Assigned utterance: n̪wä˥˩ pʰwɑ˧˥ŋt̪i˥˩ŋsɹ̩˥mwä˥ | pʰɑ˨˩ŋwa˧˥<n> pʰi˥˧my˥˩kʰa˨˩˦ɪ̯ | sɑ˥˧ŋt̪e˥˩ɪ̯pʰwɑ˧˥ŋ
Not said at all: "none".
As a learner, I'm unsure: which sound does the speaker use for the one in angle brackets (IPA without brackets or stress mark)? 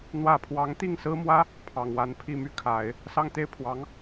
n